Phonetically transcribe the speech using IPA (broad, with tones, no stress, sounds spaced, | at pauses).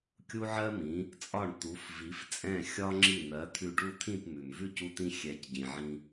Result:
kʲ u˥ ʕ ɜ˥ m ĩ˩˥ | t͡sʼ ɒ˥˩ ɳ t̪ u˩˥ f v i˩˥ f t͡sʼ ɛ̃˥˩ xʲ ɒ˥ ŋ͡ǁ i˥˩ n̪ ɜ˩˥ t̪ʰ ʉ˧ ɖ u˥˩ t̪ʰ ĩ˥˩ p m ʉ˩ m v ʉ˥˩ c u˧ t̪ ĩ˧ xʲ ɛ˩˥ c ɟ ĩ˩ ʕ ĩ˧